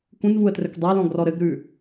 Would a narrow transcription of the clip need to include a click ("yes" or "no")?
no